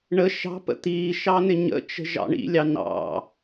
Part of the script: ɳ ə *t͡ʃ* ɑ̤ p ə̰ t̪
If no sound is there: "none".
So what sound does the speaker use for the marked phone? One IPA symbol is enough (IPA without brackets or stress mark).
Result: ʃ